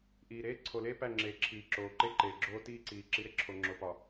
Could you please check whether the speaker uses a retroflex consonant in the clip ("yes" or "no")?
no